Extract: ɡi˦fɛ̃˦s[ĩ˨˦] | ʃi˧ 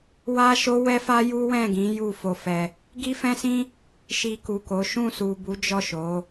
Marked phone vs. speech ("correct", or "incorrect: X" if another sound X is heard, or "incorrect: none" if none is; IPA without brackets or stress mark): incorrect: ĩ˦